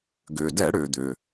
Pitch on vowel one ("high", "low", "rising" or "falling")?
low